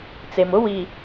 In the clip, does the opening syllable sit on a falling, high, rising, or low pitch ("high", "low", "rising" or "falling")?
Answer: low